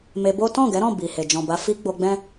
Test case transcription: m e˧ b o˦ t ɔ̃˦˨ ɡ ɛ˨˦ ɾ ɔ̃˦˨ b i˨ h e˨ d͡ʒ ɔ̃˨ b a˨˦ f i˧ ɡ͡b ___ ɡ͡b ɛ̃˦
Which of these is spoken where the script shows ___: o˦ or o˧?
o˧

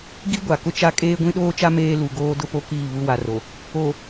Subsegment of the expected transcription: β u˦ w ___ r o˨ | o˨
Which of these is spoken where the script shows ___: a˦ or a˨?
a˨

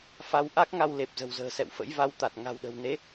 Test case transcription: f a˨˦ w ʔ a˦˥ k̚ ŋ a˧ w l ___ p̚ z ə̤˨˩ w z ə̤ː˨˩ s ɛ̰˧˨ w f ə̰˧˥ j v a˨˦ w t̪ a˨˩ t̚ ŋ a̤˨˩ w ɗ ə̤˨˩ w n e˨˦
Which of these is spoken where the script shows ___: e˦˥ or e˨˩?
e˨˩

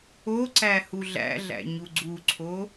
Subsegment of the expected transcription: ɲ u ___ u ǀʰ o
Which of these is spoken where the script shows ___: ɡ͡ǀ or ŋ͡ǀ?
ɡ͡ǀ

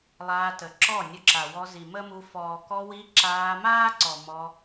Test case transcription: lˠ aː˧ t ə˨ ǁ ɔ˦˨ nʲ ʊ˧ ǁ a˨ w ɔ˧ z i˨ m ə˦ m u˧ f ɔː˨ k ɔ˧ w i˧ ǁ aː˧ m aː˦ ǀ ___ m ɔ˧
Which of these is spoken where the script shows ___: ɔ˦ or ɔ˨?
ɔ˨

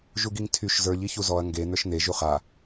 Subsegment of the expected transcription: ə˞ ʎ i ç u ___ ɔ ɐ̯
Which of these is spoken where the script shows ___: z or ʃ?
z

